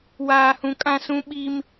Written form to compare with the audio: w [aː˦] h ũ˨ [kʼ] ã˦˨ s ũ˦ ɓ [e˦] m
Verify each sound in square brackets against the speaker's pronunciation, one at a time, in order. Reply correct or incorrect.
incorrect: aː˨, correct, incorrect: i˦

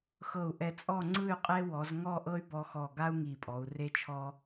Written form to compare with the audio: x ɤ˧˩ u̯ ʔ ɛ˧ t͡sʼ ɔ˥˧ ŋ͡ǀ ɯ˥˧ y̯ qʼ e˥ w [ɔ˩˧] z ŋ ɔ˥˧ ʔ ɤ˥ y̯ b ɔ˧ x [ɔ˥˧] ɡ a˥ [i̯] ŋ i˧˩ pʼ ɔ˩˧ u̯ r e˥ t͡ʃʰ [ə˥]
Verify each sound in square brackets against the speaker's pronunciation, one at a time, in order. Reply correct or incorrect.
correct, incorrect: ɔ˧˩, incorrect: u̯, incorrect: ɔ˥

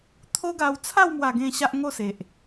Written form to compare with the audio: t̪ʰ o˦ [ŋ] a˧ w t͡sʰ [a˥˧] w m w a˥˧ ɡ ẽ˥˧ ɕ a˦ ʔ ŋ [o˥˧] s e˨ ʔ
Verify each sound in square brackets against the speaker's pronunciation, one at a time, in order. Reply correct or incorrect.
incorrect: ɡ, correct, correct

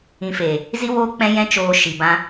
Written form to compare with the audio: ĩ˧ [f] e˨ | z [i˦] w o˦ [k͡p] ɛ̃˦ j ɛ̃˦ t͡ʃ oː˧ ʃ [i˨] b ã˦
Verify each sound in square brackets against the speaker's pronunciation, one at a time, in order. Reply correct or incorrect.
correct, correct, correct, correct

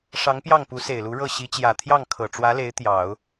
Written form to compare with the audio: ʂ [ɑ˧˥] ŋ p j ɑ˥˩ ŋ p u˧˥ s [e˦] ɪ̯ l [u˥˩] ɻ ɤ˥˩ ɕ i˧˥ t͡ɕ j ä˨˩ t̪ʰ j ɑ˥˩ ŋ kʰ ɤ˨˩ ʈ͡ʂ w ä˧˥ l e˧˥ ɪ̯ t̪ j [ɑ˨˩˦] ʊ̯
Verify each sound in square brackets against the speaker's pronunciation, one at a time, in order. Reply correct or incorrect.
correct, incorrect: e˨˩, incorrect: u˧˥, correct

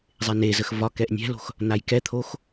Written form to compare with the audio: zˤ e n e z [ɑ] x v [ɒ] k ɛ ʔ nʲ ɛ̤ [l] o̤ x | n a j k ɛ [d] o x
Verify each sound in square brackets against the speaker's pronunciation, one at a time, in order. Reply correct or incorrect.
incorrect: ə, correct, correct, incorrect: t̪ʰ

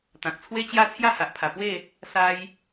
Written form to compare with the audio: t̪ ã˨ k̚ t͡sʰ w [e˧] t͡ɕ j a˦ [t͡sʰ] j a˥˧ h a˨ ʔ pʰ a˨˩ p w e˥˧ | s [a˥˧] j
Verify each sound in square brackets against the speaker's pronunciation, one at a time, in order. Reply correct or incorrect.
incorrect: e˦, correct, incorrect: a˦

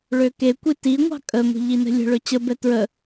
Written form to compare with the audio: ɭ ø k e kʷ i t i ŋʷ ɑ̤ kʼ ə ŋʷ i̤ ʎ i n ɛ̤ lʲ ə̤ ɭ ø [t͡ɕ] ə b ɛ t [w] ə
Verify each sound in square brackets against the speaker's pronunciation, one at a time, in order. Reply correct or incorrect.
correct, incorrect: ɹ

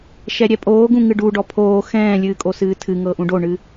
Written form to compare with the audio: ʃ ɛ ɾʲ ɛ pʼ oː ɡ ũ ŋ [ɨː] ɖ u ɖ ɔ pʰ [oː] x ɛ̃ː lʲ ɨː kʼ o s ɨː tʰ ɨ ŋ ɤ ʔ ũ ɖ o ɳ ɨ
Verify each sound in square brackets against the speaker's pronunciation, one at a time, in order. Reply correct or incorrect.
incorrect: ɨ, correct

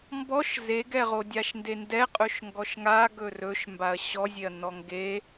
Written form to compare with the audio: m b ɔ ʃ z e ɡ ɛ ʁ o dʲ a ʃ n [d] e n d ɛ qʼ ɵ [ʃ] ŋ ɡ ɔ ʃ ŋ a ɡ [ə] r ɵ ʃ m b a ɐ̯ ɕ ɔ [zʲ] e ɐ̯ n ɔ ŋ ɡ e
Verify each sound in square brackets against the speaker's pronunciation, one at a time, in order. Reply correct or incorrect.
correct, correct, incorrect: ɵ, correct

